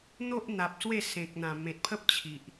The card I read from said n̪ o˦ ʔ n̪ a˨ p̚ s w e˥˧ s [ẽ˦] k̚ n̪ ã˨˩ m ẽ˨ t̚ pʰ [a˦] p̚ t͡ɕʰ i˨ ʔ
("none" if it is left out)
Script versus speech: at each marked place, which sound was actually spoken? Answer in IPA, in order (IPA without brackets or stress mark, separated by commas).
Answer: ẽ˨, ə˦